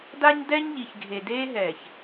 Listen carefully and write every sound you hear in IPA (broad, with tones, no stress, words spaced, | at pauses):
da˦ɲ dɛ˦ɲ ʎi˨çɡʱe˨ deː˦ɦɛː˨ç